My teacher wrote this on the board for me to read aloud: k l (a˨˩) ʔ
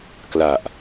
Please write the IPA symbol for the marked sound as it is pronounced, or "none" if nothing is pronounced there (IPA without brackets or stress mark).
a˨˩